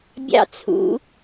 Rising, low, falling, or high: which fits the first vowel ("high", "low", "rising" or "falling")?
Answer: high